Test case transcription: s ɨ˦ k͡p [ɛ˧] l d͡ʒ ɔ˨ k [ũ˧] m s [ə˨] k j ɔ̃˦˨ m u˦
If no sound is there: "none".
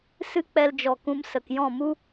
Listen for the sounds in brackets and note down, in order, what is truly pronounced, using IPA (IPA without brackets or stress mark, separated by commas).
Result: ɛ˧, ũ˧, ə˨